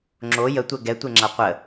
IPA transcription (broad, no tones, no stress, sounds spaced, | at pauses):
ŋ͡ǁ o j ə tʷ ɛ ɡ ɛ tʷ e ŋ͡ǁ a qʷ ə